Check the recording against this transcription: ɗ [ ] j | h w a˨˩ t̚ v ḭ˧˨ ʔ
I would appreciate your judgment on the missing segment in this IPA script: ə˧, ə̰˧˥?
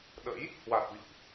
ə̰˧˥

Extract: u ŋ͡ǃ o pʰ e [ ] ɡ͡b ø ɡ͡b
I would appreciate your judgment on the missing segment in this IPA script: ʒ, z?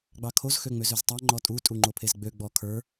z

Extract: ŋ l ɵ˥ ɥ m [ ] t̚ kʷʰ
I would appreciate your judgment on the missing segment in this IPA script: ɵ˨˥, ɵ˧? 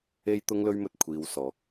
ɵ˧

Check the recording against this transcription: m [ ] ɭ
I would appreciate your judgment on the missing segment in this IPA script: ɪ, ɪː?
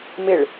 ɪ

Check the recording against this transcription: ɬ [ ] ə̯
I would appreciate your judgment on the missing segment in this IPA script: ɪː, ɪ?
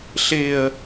ɪː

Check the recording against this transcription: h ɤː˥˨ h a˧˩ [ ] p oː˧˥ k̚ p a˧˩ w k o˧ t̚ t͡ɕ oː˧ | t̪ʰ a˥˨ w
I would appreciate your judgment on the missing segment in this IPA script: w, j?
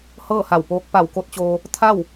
w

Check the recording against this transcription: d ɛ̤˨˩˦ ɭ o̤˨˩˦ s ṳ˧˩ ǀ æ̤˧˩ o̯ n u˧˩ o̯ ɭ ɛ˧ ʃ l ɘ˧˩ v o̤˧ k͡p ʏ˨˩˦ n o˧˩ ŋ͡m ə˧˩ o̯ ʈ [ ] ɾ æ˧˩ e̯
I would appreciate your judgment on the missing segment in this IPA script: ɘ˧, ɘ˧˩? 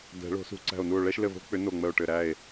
ɘ˧˩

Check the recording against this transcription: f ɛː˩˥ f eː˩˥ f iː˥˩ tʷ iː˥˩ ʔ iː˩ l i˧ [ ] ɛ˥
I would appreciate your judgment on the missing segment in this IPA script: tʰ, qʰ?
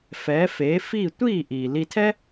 tʰ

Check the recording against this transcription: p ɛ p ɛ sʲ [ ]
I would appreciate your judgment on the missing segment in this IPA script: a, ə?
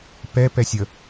ə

